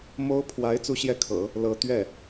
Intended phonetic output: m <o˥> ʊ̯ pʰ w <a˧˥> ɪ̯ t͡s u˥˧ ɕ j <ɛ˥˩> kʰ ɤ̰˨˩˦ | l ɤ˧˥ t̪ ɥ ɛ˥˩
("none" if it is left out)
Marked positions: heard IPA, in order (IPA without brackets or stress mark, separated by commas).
o˥, a˧˥, ɛ˥˩